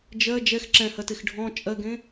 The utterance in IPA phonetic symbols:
d͡ʒɜ d͡ʒɛx ǁɛ̃hɜtex ɖʱɔ̃ t͡ʃʼɜɡẽ

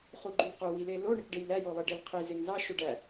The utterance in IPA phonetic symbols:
χuɡ͡ǃylqu wilelo ɳekɖejlæ jolˠeɖelqʰi zeŋzɑ ʃoɖæ

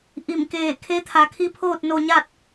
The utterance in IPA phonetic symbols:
ʔi˧˩mkeː˧˩ kʰe˧˥t̪ʰa˩˧kʰi˧˥pʰoː˥˨t̚ no˧ɲa˥˨t̚

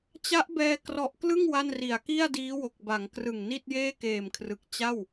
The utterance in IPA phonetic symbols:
t͡ɕa˦˥ʔbɛː˧ krɔ˨˩ʔklɯ˥˩ŋ wa˥˩nri˨˩a̯ ki˥˩a̯diː˦˥wo˨˩k̚ ba˩˦ŋkrɯ˨˩ŋ ni˥˩t̚jeː˥˩keː˨˩mkʰrɯ˨˩k̚ t͡ɕa˥˩w

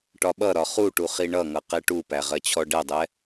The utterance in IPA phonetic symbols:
ʈɒɓʌɾɒ χuʈu χiɳʌŋʌ qɛʈupæ ʁɜt͡ɕʰɔɖɛdˤɛ

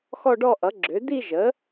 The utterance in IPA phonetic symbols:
xɔ˥˧ɖɔ˥˧ ʔʌ˩˥ɡ͡ǁø˩˥ d̪i˥˧ʒə˩˥

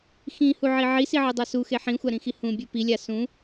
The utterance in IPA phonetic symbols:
xĩhuʕi ʕisiʕɨdˤa suxe ħĩxʷaɾĩxi hũbʲu pilʲa sũ

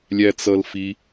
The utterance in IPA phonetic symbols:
lʲæt͡sʌlfi

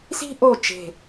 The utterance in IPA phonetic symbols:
si̤˥ʔo˦˨ t͡ʃe̤˦˨

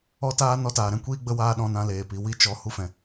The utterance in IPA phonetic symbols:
ɔ˧taː˧ nɔ˧taː˨ɾɛ̃˧ kʷiː˦ ɡ͡bə˧waː˧ ɗɔ̃˧nã˧ leː˨pi˨ wi˦t͡ʃɔ˧ hu˧fɛ̃˨

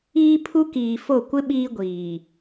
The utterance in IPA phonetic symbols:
iː˦pʰu˦ kiː˨fo˦˨ kʷɪ˦ ɓiː˦ɡʷiː˨

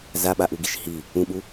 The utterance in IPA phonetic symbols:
zaɓaʔuɡiʃ hi | ũɓu

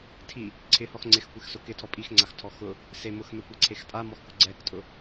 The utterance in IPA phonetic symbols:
tʰi | ǀʰɪhɔx ŋ͡ǀɪxkʷɪxsʊ kɪtʰɔ pʼixŋ͡ǀaxtʰɔ xʊ | se mʊxmɛkʷɛǀʰex tʼamɔxkʊ ɡ͡ǀɛktʼʊ

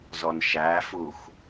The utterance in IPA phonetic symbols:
zɔnʃæfux

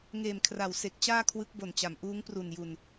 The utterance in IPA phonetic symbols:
ŋeː˨˩mkʰra˩˦wse˨˩k̚ t͡ɕaː˥˩kʰwɯ˦˥k̚bo˨˩nt͡ɕa˩˦m ʔuː˦˥ŋpru˨˩nju˨˩n

